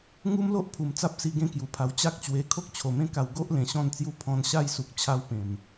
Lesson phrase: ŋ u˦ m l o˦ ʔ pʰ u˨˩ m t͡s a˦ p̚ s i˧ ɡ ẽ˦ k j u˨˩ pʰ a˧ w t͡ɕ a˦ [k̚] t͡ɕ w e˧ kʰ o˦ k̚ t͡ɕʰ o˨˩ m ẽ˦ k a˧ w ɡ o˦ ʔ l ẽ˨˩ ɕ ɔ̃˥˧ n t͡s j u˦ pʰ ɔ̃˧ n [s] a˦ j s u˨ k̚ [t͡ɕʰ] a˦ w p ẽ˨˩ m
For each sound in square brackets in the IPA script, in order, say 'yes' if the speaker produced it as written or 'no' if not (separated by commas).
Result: yes, no, yes